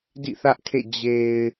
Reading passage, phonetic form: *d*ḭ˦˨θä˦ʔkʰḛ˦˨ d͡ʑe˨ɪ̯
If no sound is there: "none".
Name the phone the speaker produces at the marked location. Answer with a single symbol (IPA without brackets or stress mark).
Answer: d